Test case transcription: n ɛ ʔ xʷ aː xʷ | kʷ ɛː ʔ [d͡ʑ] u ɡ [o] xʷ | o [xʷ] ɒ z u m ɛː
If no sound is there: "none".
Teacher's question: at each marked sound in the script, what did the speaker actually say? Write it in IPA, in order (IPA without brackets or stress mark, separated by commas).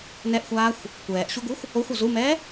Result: ɕ, u, xʷ